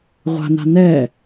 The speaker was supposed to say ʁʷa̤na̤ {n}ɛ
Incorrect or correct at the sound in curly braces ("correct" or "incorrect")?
correct